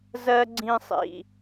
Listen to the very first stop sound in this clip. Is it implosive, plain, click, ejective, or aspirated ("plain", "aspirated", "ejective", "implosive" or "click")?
click